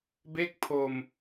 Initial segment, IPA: b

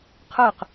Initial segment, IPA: qʰ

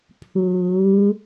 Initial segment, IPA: pʰ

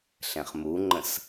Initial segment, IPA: ɬ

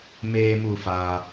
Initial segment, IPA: m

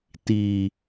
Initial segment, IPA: t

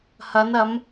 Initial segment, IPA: h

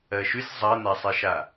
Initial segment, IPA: ɜ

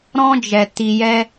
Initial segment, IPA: ɾ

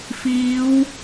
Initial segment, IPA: f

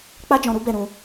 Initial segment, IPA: k͡p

